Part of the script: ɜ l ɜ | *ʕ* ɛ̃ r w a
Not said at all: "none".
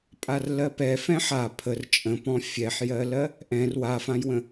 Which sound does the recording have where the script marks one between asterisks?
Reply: ʔ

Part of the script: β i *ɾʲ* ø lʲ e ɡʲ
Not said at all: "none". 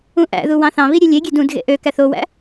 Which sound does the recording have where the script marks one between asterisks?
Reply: ɾʲ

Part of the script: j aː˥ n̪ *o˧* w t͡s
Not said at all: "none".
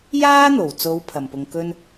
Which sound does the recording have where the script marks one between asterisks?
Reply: o˨˩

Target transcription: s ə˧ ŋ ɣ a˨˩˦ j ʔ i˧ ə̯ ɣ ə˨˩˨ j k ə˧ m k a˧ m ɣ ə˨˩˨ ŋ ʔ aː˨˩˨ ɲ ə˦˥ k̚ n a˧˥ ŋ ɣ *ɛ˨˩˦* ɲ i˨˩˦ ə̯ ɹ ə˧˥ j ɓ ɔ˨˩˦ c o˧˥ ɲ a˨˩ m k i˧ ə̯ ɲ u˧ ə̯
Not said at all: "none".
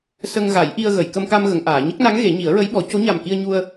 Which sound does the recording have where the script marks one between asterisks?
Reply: e˨˩˦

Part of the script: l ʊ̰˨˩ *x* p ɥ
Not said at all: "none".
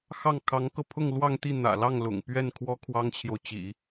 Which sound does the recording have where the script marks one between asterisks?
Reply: ŋ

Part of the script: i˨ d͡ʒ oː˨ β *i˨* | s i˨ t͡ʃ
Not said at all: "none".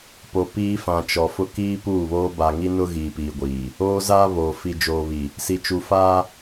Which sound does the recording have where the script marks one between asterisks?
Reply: i˨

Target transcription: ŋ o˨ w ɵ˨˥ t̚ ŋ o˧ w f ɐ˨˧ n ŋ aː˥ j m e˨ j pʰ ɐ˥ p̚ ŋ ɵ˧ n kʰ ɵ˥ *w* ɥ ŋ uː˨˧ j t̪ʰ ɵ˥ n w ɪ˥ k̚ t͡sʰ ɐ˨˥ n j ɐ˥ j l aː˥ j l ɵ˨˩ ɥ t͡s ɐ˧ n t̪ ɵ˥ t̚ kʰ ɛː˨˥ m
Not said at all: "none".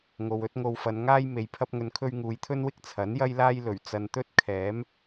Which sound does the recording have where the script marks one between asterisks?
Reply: none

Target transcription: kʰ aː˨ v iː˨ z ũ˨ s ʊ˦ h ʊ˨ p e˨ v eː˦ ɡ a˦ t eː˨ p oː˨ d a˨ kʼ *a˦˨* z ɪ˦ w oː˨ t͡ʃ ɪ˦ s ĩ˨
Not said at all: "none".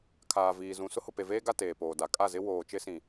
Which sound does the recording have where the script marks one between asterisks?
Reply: a˦˨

